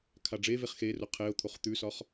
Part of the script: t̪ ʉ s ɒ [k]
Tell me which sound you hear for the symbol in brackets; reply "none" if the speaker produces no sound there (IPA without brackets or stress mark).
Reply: χ